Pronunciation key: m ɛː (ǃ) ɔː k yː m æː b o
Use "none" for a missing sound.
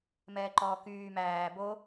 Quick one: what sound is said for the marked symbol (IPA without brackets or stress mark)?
ǃ